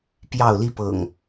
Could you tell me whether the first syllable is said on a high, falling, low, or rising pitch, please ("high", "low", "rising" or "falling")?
falling